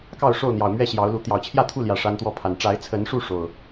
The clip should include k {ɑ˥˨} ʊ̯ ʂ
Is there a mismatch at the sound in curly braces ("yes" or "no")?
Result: no